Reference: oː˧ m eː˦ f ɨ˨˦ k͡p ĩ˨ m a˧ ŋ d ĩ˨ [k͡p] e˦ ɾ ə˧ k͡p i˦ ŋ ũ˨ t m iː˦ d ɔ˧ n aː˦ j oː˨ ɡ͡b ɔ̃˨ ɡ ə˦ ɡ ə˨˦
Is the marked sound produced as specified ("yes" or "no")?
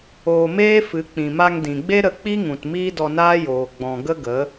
no